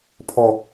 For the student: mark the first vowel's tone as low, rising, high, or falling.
low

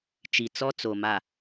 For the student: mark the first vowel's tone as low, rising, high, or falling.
low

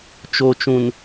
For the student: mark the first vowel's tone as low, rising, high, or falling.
low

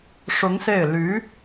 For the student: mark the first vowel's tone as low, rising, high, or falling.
rising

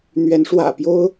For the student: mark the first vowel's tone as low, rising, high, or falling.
rising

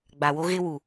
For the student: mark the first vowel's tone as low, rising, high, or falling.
low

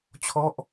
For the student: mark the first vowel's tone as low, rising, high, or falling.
falling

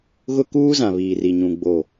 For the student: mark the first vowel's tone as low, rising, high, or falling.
high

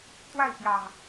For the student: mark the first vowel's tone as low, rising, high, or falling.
falling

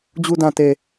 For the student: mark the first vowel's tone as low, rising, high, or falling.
low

